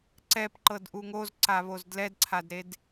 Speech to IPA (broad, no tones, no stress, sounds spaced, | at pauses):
ǀ ɛ p ǃ ɤ d ʔ u ŋ o z ǀ a β o z d l ɛ d ǀʰ a d ɾ e d